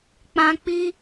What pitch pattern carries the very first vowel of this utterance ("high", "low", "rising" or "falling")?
low